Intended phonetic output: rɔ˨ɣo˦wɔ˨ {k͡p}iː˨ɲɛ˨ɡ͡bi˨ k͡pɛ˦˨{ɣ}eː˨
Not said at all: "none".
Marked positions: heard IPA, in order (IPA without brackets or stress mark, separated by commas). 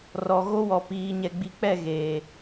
p, ɣ